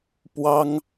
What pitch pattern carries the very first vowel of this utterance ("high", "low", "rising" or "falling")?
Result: high